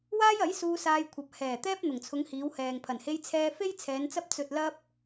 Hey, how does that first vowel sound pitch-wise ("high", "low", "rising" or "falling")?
high